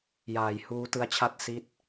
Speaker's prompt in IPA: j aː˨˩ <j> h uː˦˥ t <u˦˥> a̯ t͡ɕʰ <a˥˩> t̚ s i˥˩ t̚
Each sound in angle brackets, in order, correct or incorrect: correct, incorrect, correct

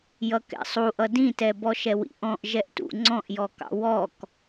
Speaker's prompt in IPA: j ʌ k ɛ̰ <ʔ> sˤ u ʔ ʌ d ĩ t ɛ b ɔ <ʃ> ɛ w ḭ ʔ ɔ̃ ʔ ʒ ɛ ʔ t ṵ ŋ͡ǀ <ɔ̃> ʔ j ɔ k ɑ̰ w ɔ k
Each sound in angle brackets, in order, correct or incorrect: incorrect, correct, correct

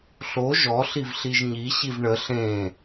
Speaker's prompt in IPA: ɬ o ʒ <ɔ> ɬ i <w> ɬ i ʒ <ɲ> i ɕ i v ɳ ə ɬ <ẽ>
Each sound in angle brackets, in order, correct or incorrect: correct, incorrect, correct, correct

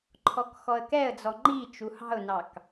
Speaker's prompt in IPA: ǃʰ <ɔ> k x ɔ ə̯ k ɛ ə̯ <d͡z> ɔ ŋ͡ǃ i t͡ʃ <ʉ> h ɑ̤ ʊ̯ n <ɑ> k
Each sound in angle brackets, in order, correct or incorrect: correct, correct, incorrect, correct

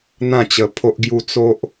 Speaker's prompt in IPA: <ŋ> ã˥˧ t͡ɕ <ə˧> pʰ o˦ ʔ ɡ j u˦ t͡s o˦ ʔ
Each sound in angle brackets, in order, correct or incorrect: incorrect, correct

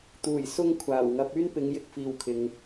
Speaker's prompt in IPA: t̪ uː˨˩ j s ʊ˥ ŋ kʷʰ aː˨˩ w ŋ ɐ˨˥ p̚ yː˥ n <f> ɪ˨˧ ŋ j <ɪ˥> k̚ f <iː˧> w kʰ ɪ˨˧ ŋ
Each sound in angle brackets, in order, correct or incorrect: incorrect, correct, correct

